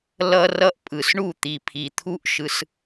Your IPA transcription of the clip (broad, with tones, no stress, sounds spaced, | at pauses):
l ʌ˧ r ʌ˧ ʔ pʼ ɯ˨ s ɳ u˦˨ t̪ i˨ pʰ i˨ t̪ʰ u˦ ʔ ʃ ɯ˧ s